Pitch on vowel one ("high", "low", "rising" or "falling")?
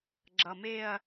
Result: low